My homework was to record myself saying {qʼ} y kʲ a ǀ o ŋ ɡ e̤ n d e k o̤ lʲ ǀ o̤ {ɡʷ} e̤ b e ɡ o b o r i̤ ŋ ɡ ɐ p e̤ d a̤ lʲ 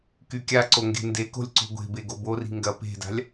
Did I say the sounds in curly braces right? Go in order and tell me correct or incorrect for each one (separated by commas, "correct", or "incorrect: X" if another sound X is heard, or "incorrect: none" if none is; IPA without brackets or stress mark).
incorrect: k, correct